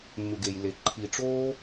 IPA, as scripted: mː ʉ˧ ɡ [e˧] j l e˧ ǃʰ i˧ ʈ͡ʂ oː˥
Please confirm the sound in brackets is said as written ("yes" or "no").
yes